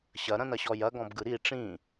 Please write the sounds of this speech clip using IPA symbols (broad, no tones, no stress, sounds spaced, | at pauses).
ɕ ɐ ɾ ɐ̃ n ɐ ɕ ɔ j ɐ ɡ ɔ̃ b ɡ ɯ ɾ i ʈ͡ʂ ĩ